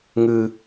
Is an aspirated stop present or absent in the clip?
absent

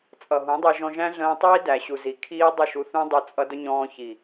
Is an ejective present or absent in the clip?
present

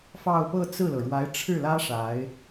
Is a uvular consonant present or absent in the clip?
absent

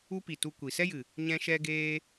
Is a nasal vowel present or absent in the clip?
present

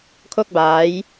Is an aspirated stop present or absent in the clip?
present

